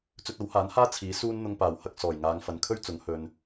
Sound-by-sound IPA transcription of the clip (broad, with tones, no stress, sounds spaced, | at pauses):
t͡s ɵ˧ t̚ ɐ˨˥ w h aː˨˥ n h aː˥ t͡sʰ iː˨˥ s uː˥ n n̪ ʊ˧ ŋ p aː˨˩ w h ɐ˧ k̚ s ɔː˨˩ j ŋ aː˨˧ ŋ f ɐ˨ n kʰ ɵ˥ ɥ t͡s ʊ˨˥ ŋ h ɵ˨ n